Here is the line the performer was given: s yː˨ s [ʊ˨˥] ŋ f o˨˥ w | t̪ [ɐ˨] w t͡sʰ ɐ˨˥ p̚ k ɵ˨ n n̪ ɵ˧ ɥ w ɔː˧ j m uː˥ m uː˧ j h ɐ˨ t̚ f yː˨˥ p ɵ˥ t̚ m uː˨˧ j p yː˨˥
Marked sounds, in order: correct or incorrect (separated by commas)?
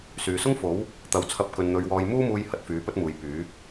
incorrect, correct